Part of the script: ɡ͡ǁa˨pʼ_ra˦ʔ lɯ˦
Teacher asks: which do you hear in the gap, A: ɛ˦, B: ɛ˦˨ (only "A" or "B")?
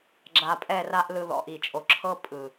B